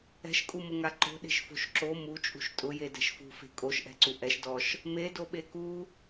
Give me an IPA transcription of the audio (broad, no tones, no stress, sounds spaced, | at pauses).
ɛ̤ ʃ kʼ u m ʊ ŋ a ǃ o̤ ɗ e̤ ʃ f o̤ ʃ ǁ o m u t͡ʃʼ ṳ ʃ tʼ ʊ j e d ɛ̤ ʃ f ṳ f e̤ kʼ o ʃ ʔ ɛ̤ ǀ u ʔ ɛ ʃ d ɔ ʃ | m e d o ɓ e k u